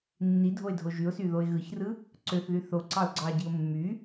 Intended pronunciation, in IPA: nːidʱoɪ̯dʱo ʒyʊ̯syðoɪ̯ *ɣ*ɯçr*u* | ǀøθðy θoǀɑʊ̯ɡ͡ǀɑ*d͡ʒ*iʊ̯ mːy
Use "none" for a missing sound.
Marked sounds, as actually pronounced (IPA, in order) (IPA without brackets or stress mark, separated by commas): ɣ, ɯ, ɟ